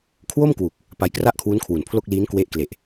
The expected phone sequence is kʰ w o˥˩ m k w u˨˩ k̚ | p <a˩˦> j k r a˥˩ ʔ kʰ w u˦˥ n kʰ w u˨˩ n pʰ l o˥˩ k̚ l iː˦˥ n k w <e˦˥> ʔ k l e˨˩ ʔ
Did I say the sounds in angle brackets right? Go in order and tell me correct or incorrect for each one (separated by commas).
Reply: incorrect, correct